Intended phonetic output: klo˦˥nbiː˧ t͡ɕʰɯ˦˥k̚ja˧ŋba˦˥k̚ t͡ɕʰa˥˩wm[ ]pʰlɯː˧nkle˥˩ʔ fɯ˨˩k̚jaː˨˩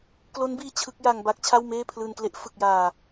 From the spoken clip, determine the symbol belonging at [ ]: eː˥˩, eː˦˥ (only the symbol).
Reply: eː˥˩